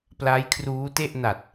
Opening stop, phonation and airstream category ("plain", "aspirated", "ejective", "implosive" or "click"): plain